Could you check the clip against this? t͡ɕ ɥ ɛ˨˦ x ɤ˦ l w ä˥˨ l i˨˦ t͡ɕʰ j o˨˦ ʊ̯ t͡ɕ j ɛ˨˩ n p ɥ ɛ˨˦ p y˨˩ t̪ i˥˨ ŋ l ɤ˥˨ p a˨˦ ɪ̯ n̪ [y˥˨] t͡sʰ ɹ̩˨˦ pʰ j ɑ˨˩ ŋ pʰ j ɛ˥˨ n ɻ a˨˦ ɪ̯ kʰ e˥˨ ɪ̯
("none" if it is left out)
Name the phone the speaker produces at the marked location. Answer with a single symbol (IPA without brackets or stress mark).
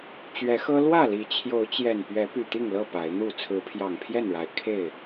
u˥˨